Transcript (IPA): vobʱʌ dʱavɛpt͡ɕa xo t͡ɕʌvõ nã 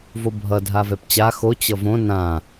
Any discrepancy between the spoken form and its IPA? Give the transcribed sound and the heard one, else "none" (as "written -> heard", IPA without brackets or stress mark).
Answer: none